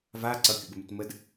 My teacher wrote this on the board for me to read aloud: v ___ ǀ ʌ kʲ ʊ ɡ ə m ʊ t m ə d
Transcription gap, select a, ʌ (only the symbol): a